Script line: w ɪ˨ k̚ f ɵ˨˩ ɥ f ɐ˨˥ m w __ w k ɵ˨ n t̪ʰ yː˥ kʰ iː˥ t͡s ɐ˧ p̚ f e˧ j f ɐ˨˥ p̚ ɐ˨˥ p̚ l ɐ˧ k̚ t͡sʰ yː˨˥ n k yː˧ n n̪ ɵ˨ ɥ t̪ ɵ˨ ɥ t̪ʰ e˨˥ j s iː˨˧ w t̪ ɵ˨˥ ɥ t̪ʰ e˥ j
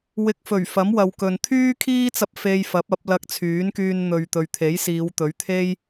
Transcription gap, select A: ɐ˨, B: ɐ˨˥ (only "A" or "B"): A